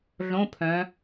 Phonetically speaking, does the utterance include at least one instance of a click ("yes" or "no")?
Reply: no